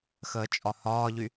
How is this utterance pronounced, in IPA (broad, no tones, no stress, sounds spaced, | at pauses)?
x əː t͡ʃʼ ɒ h ɒː ʎ y